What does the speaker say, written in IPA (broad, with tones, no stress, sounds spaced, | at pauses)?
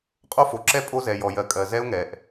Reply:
qʼ o˦ f o˨ ǁ ɛ˦ pʼ o˦ z ɛ˨ j ɔ˨ j ɜ˨ kʼ ɜ˨ z ɛ˦ ʊ̯ ŋ ɛ˨ ʔ